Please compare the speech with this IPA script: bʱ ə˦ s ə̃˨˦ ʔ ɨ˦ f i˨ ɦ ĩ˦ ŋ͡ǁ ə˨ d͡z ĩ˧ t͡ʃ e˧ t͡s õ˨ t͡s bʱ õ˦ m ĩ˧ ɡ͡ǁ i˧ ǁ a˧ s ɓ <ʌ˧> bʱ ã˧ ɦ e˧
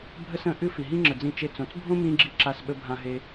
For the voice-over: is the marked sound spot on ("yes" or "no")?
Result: no